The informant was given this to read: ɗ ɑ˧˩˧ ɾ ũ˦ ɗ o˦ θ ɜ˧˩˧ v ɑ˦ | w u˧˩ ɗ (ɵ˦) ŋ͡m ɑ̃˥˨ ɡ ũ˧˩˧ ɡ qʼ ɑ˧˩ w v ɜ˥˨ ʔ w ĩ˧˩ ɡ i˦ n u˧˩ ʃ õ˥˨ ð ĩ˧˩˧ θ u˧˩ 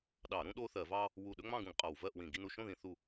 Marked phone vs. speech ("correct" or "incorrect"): correct